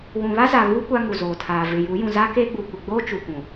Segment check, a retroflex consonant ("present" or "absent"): absent